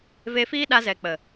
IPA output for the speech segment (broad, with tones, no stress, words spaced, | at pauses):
ve˧fiː˦ɗa˧zɛ˨ k͡pə˨